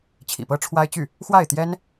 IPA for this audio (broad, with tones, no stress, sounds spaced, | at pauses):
t͡ɕʰ ḭ˨˩ p ɤ˥ ʈ͡ʂʰ w a˥ ɪ̯ t͡ɕ y˥˩ | x w a˥˩ ɪ̯ t̪ j ɛ˥ n